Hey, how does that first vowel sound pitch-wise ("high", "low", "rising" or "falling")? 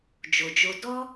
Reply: low